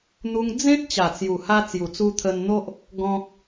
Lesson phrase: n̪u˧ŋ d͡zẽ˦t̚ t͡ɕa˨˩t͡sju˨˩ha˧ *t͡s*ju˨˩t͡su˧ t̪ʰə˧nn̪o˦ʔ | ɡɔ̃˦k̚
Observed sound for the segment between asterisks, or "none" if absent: t͡s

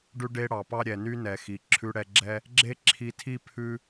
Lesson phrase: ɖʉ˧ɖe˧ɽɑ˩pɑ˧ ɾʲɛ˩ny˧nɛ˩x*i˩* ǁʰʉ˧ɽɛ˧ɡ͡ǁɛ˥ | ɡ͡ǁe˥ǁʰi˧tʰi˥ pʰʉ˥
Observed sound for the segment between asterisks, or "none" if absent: i˩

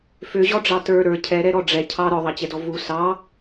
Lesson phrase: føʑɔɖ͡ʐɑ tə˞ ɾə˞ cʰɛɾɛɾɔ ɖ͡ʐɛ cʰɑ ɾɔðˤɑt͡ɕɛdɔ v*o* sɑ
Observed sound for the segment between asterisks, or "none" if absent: u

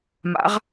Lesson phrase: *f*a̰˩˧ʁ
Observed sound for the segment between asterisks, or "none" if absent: m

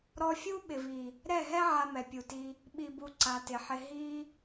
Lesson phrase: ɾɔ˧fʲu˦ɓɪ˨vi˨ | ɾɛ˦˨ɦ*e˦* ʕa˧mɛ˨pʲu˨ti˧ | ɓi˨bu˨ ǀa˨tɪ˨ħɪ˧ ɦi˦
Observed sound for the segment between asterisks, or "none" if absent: ɛ˦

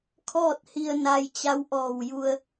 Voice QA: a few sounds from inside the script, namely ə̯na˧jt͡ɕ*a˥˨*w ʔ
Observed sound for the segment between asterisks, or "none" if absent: a˧˥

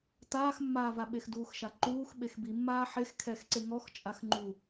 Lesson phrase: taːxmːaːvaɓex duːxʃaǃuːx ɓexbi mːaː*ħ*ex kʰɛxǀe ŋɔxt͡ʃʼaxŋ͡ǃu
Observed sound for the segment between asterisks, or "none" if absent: ħ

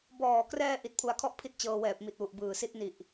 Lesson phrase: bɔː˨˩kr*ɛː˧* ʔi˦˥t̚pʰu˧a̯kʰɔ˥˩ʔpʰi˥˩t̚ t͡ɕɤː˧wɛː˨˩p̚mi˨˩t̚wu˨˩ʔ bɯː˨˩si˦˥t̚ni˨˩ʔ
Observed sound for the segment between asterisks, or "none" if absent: ɛː˧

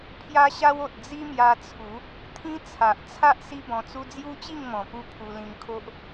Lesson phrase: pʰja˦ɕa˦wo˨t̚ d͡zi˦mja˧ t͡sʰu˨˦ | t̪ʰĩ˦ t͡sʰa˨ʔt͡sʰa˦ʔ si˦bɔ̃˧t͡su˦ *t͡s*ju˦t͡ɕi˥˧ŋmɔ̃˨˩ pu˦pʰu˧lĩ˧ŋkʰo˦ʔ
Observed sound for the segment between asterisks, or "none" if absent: d͡z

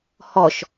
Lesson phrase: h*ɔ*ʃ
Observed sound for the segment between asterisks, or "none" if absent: ɔ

